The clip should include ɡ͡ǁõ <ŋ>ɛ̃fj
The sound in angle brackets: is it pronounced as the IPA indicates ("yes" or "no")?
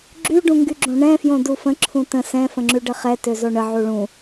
no